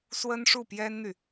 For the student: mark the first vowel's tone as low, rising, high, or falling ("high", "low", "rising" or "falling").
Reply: high